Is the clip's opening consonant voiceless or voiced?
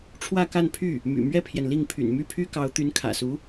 voiceless